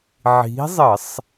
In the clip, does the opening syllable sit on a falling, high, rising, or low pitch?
rising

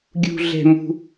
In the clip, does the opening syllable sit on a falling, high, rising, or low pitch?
high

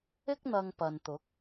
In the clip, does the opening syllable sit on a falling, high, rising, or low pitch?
high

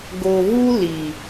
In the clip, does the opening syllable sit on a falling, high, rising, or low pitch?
low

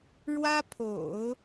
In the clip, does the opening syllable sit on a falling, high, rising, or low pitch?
high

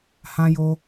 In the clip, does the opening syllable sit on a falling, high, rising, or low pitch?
high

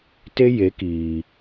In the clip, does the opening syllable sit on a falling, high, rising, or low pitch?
high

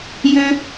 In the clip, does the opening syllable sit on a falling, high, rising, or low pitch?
high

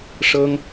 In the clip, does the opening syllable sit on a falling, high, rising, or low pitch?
high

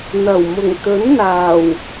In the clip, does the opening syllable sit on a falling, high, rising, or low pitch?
low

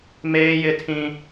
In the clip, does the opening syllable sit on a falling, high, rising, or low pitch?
high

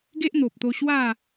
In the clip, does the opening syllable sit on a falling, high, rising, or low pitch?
high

